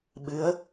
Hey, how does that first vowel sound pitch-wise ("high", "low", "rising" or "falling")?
rising